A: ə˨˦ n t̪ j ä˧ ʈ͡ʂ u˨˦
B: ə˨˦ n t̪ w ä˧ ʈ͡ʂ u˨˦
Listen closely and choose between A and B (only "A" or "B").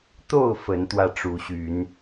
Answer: B